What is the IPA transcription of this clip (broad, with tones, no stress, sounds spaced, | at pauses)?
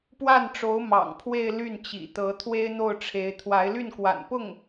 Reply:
p w a˥˩ n ʈ͡ʂ o˧˥ ʊ̯ m ɑ̰˨˩ ŋ pʰ w e˥˧ ɪ̯ l y˥˩ n t͡ɕ ḭ˨˩ t̪ ɤ˧˥ t̪ʰ w e˥ ɪ̯ n̪ o˥˩ ʊ̯ ʈ͡ʂʰ e˧˥ ɪ̯ t̪ʰ w a˧˥ ɪ̯ l y˥˩ n k w a̰˨˩ n p ʊ˥˩ ŋ